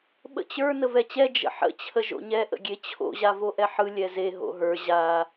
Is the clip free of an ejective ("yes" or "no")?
yes